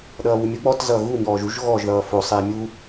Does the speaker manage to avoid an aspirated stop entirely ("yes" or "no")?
yes